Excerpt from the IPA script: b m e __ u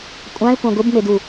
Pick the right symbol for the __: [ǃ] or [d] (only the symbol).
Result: d